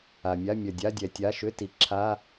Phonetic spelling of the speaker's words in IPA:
a˩ mʲ a˧˥˧ mʲ ɐ˩ dʲ a˧˥˧ dʲ ɛ˩ tʲ a˧˥˧ ʃ ʏ˧˥˧ t i˩ ǁʰ a˧˥˧

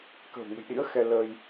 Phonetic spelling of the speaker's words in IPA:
k ə̤˨˩ w ŋ ə̤˨˩ j ɗ ḭ˧˥ ə̯ x ɛ˧ l əː˧ j

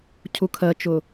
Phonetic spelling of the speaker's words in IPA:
cʰ u kʰ ɜ t͡ʃ ʊ

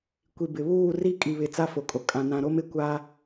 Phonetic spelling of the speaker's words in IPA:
kʷ i˨ b ɪ˨ β uː˦˨ r i˦ kʼ i˨ β ɪ˨ t͡s a˦ f o˨ kʼ o˨ kʼ ã˨ n ã˨ ɾ o˦ m ɪ˨ kʷ a˦

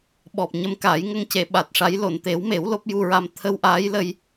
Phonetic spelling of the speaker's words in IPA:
ɓ ɔ˨˩ p̚ ɲ ə˧ m k aː˨˩˦ j ŋ ə˧ ŋ c e˨˩˨ ɓ a˨˩ t̚ ʂ a˧˥ j l o˨˩˨ n t̪ e˨˩˦ w m e˨˩˦ w l o˦˥ p̚ j u˧ ɹ a˧ m t̪ʰ ə˧ w ʔ aː˧˥ j l ə˧ j

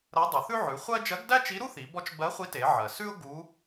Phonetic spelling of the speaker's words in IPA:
ɾ ɜ˧˥ dˤ u˩˧ θ ʉ˥ ʕ ʉ˩˧ χʷ ɜ˥ d͡ʒ ɜ˧˥ ɡ d æ˥ t͡ʃ i˧˥ ɾ u˥ θ i˩˧ b ɔ˧˥ t͡ʃ b ɜ˧˥ χʷ i˧˥ t e˩˧ ʕ ɜ˩ s ʉ˥ ʊ̯ ɡ u˧˥

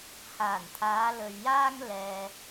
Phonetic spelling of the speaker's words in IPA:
h aː˨˩ n t̪ʰ aː˨˧ l ɵ˨ ɥ j aː˥ ŋ l ɛː˨

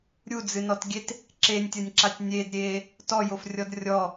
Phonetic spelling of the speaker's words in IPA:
ɾʲ u d͡z ɨ n ɔ t ɡʲ e t | ǁ e nʲ tʲ ɐ nʲ ǁ a tʲ nʲ e d ɾʲ eː | t ɔ j o f rʲ ɔ d rʲ ɔ

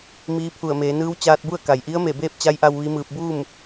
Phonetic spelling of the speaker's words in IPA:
m iː˧˥ pʰ u˧˩ ə̯ m eː˩˧ n ɯː˧˥ w t͡ɕ aː˧ t̚ b u˥˨ ə̯ k a˩ j ʔ i˧˥ ə̯ m e˧˩ b eː˥˨ p̚ t͡ɕ a˧˥ j ʔ a˧ w ʋ i˧˥ m ɯː˧ p̚ b uː˥˨ m

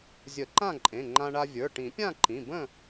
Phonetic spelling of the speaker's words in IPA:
zʲ ə˨˩˦ ǃ ã˥˨ ǃʼ ẽ˩˧˩ ŋ͡ǃ ã˧ ɳ a˧ vʲ ə˞˩˧˩ ʈ ĩ˨˩˦ pʲ ã˥˨ ǃ ĩ˩˧˩ b ə̃˥˨

